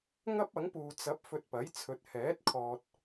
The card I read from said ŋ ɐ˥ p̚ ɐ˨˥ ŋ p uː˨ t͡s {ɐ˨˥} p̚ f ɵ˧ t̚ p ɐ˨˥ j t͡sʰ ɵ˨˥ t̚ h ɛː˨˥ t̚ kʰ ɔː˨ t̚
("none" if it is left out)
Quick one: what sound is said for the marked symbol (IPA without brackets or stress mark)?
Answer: ɐ˨˥